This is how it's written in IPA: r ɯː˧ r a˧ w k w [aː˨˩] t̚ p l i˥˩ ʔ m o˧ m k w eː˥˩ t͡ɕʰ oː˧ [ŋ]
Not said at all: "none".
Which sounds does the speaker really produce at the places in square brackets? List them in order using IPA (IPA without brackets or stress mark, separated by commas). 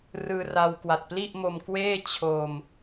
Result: a˨˩, m